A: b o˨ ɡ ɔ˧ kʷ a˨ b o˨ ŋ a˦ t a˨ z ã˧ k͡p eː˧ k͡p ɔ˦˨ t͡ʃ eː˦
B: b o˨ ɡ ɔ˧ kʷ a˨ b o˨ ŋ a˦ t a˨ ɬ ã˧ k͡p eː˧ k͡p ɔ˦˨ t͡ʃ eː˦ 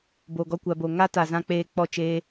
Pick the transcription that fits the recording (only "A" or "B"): A